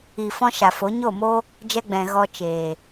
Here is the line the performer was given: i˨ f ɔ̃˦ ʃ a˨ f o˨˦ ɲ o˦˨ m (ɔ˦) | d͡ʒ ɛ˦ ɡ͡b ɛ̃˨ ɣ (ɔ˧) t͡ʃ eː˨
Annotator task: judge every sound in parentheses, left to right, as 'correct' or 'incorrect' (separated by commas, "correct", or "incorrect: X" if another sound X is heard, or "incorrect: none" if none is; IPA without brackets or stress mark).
incorrect: o˦, correct